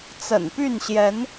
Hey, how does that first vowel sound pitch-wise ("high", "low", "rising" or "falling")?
low